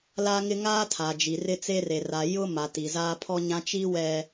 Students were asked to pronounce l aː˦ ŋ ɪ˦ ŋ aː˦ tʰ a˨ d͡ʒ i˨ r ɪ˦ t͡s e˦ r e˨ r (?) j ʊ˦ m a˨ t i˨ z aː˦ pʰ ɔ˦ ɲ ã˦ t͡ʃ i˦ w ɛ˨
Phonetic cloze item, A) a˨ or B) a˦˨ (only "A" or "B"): A